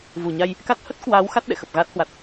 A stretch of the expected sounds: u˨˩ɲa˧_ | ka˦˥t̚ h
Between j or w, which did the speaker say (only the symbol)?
j